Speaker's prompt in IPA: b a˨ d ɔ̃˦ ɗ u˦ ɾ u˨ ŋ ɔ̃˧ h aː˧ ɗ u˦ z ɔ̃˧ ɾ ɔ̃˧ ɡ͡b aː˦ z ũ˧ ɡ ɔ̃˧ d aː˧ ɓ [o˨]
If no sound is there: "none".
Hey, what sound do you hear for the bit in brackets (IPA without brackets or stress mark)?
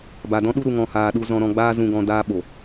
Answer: o˨